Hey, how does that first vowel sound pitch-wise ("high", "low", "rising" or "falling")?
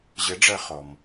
rising